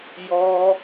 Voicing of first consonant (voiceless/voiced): voiced